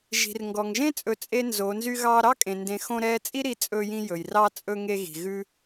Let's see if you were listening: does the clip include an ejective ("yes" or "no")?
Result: yes